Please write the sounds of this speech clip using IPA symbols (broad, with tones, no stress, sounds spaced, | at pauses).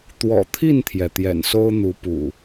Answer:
t̪ w ɔ̰˨˩ t̪ʰ i˥˨ n t̪ʰ j ɛ˩ t̪ j ɛ̰˨˩ n s o˦ ʊ̯ n̪ u˨˦ p ṵ˨˩